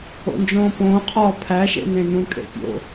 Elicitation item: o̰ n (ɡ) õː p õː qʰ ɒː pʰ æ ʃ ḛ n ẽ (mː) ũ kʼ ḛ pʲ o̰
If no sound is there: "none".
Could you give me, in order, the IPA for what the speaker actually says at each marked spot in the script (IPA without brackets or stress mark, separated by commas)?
d͡ʒ, n